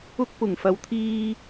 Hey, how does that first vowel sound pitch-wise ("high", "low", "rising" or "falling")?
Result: high